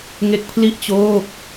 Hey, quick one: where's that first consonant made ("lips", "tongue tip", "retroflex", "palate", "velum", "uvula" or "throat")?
velum